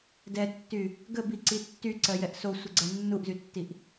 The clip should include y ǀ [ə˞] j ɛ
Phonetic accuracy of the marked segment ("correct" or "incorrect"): incorrect